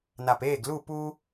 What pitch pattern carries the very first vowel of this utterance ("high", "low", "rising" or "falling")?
low